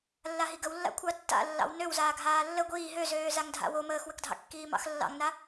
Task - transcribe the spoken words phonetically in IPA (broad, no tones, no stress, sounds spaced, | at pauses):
lː a ɦ i ɡ ə w lː a̰ kʷʰ ɑ tː a̰ lː ɑ̰ w n ø w z aː ɡʱ aː lː ə ɡʷ iː ɦ ø z øː z a ŋ dʱ a̰ w o m əː x w ə k dʱ ɑ̰ kː iː m ɑ̰ x lː ɑ̰ ŋ n a